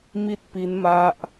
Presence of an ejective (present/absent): absent